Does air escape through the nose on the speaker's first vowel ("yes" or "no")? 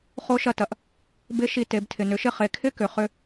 no